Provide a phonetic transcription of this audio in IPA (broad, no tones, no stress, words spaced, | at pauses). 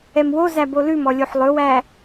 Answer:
ɛmwozæ bolʉmɔ lʲoħlˠɵwæ